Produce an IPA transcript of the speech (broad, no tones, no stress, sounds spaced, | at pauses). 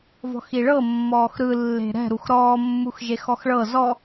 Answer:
v ɔ̤ x i ɭ ɤ mː ɔː x ɾ ɯ lː e̤ ɾ ɛ̤ ɾ u x ɾ ɔː mː u x ʒ e x ɔ x ɭ ɤ z ɔ